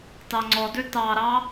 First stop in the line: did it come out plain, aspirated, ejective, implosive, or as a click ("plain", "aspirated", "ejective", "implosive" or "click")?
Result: plain